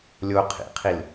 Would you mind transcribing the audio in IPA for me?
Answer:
lʲ o qʰ ḭ qʰ i l

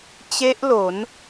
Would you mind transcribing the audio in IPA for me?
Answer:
t͡ɕ e˦˥ ʔ l o˩˦ n

